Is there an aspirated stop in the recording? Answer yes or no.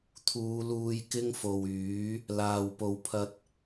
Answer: yes